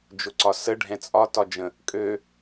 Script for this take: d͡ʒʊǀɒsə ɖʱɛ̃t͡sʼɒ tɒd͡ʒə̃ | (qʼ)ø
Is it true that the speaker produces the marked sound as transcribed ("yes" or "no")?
no